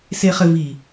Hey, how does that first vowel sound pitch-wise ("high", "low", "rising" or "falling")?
low